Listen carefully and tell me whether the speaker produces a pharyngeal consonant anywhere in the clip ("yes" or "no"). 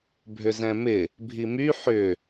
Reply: yes